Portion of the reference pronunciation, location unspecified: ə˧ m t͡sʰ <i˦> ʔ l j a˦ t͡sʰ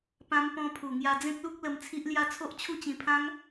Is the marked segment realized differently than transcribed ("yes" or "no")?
no